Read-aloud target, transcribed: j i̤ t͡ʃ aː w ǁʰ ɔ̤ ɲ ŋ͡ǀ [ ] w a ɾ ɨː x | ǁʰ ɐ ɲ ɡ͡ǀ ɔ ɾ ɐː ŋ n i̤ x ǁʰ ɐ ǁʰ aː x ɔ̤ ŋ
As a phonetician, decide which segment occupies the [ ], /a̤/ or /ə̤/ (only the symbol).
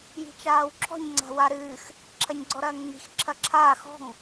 a̤